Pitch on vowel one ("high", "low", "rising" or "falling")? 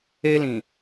high